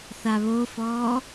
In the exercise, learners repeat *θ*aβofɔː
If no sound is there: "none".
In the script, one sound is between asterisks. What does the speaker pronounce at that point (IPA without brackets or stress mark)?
θ